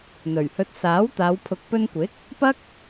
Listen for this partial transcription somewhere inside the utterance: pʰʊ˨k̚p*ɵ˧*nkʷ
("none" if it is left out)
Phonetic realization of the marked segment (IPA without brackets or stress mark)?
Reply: ɵ˧